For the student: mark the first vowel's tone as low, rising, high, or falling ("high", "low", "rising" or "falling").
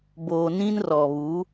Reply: low